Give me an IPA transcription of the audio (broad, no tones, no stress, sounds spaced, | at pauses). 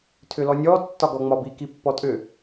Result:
tʰ ʏ l ɔ nʲ ɔ tː ɒ ɡ ɔ ŋ͡m ɒ b i k i pː ɔ tʼ ʏ